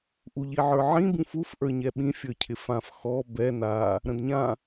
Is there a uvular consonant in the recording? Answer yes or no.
no